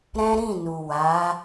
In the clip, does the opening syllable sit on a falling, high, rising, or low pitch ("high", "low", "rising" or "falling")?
high